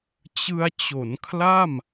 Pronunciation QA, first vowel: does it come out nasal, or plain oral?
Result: oral